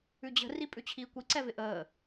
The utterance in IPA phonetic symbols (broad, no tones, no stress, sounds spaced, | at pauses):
ʉ d͡ʑ ə̤ r i pʼ ʉ t͡ɕʰ iː kʷ i ǀ ɛ v ɪ ʔ əː